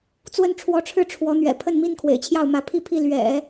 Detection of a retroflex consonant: present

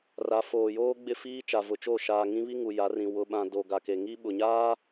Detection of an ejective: absent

